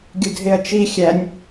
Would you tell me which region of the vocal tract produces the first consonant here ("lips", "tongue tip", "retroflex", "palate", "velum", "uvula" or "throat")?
velum